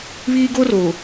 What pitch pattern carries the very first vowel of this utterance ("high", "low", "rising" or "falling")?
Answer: high